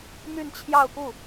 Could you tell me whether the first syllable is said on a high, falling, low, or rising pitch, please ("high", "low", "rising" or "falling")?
falling